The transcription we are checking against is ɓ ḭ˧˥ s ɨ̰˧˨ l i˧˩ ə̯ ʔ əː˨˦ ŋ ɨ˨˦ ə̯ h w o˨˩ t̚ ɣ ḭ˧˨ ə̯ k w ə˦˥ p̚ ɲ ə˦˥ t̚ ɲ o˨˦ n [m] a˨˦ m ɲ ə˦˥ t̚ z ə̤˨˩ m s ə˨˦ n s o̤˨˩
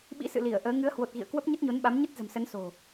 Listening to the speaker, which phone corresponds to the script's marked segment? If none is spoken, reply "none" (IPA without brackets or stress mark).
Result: ɓ